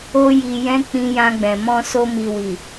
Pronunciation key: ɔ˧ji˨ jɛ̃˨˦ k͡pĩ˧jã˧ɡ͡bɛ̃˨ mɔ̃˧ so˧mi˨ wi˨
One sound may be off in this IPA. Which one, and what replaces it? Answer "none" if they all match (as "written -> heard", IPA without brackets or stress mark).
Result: ɔ˧ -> o˧